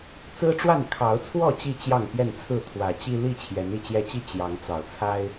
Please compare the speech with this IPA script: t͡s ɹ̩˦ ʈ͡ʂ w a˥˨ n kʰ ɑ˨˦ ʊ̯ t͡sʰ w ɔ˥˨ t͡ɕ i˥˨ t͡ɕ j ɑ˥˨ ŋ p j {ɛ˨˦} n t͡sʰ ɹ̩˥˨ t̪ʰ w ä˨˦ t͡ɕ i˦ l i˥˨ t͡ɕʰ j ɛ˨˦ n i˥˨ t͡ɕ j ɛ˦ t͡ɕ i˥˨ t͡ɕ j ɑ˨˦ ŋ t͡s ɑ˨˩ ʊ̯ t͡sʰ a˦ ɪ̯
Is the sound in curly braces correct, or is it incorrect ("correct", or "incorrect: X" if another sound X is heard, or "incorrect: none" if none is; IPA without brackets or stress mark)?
incorrect: ɛ˥˨